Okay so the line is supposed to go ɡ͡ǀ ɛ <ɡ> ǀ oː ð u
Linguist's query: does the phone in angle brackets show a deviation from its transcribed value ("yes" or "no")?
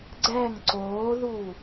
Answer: yes